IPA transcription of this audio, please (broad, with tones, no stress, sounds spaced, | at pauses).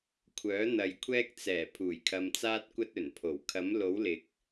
kʷʰ œː˨˥ n̪ ɐ˨ j kʷʰ ɛː˧ k̚ t͡s ɛː˨˩ pʰ uː˨˩ j kʰ ɐ˨ m t͡s aː˧ t̚ kʷ ɐ˧ t̚ ɵ˨˩ n pʰ o˨˩ w kʰ ɐ˨˥ m l o˨˥ w l ɪ˨ k̚